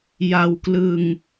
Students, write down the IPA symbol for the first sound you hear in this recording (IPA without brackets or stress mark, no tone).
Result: j